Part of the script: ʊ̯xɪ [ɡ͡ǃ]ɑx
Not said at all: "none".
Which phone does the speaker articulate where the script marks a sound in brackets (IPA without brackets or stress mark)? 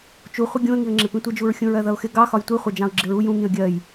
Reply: ɡ